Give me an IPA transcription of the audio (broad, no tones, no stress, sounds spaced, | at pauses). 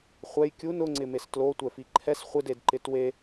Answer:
χʷ ɛ j kʲ u n ʊ ŋ͡ǀ ɪ m e s t l o tʷ ɛ f i ǃʰ ɛ s χʷ ɪ d e d ǃ ɪ t w e